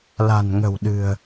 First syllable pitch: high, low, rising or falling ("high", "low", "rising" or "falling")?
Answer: low